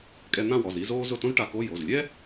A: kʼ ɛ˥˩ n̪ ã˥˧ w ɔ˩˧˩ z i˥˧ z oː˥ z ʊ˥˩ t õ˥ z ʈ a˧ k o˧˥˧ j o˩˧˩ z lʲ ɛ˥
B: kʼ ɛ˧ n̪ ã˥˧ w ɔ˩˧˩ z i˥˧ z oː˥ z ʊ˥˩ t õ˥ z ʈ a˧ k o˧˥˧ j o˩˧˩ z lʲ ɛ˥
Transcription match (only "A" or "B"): B